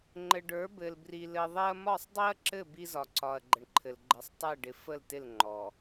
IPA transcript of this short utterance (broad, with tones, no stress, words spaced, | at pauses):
ŋ͡ǃɘ˨ɖə˞˨˦ bɘ˨l bri˨ lɘ˨ðˤe˦ɐ̯ mɒ˦˨sˤdˤi˦ɐ̯ǁɘ˦˨ bi˦zɒ˨ǀɒ˨ɐ̯ ɡ͡ǃə˨ɳǃʰɘ˨l ɡ͡ǃə˨˦sˤtˤɛ˦˨ɖɪ˨ fə˦˨ltɪ˦˨l ŋ͡ǃɔ˨